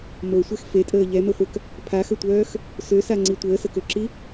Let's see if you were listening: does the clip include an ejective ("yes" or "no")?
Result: yes